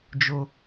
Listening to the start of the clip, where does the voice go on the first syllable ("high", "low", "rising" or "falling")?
high